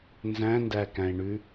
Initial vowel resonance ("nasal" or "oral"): nasal